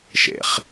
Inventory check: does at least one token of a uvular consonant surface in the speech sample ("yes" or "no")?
yes